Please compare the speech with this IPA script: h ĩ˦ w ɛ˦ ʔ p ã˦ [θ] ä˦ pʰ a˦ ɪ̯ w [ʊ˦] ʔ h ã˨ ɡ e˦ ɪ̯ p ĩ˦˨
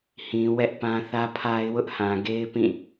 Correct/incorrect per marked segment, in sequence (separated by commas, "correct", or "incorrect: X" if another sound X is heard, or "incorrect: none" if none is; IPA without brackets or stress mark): correct, correct